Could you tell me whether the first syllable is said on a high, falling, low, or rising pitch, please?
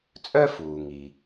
high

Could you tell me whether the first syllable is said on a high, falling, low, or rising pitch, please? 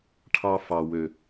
high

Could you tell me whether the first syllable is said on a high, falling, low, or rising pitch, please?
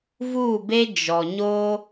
falling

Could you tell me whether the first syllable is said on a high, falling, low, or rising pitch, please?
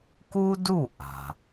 high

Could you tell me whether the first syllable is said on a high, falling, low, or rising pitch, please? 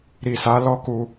low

